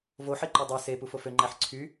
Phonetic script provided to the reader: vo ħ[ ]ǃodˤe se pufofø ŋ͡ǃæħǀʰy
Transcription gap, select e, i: e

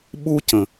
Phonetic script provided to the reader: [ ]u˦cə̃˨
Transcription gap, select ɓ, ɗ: ɓ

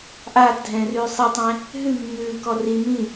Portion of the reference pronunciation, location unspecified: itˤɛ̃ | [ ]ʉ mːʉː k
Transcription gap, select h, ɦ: ɦ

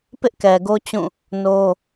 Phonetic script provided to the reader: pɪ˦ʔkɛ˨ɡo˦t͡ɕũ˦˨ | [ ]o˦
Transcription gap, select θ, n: n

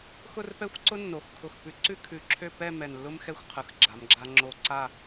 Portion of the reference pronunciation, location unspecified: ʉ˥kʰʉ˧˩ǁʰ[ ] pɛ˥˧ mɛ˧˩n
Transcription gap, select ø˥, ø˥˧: ø˥˧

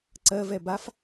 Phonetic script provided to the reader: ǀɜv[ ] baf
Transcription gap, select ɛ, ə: ɛ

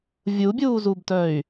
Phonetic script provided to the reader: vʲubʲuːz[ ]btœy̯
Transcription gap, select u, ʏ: u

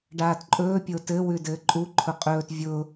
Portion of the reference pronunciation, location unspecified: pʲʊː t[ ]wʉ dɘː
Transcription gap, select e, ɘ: ɘ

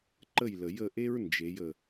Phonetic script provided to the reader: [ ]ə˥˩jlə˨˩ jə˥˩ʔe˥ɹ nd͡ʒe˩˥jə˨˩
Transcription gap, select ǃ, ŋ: ǃ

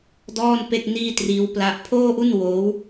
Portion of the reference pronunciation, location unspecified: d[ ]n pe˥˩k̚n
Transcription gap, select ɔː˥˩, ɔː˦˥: ɔː˥˩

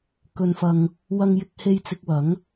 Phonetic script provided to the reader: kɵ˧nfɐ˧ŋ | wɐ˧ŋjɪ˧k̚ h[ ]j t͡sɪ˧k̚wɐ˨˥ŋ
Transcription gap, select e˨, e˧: e˧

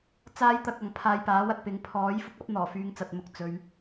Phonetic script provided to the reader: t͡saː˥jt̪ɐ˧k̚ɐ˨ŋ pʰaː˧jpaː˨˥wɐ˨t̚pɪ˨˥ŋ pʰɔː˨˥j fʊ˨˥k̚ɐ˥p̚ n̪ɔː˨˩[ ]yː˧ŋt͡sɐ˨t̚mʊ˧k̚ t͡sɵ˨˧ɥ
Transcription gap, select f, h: f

